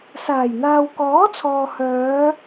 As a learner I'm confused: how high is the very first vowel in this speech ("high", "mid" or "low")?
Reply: low